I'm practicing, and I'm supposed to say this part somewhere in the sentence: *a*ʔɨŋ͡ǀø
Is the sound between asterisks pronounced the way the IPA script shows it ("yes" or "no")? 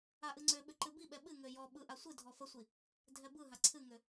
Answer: yes